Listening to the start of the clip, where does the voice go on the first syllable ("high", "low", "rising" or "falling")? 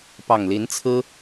low